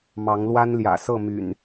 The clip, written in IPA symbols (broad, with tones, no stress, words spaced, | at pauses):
mɑ˨˦ŋlwa˦n ljä̰˨˩sɤ˥˨my̰˨˩n